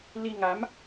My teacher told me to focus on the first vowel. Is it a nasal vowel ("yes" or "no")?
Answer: no